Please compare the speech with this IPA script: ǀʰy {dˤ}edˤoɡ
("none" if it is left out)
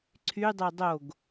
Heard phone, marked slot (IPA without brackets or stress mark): dˤ